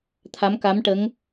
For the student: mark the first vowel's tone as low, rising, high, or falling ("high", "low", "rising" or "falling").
rising